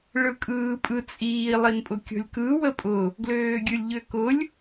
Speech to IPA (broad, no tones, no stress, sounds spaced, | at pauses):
ɭ ɯ kʼ ɯː pʼ ɯ t͡sʼ iː lˠ i n pʼ ʊ kʲ ɔ̤ lʲ k ɯ w ə pʼ ʊ | ɡ l øː ɡʲ ɯ lʲ ʎ ø k ʊ lʲ